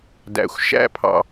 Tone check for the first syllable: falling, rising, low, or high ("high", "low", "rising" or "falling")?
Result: low